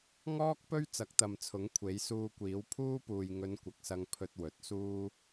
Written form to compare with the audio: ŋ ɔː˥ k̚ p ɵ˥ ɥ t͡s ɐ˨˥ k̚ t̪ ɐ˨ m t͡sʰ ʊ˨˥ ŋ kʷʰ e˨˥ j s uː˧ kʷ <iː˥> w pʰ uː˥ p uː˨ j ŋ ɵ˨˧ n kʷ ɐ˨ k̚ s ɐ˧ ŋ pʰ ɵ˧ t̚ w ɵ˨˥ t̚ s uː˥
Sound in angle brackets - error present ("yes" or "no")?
yes